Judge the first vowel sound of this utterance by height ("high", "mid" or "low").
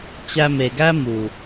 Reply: low